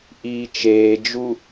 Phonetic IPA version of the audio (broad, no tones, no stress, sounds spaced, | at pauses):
ʔ iː t͡ʃ eː d͡ʒ u